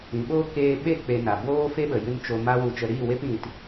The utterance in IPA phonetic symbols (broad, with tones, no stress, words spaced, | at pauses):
ĩ˨ɓo˦ keː˧ɓe˦˨ k͡pe˧na˨ boː˦ fe˦ɓə˨ jɨ˧n t͡ʃo˧ ma˦wu˧t͡ʃə˧ ɾiː˦˨we˦p ĩ˧t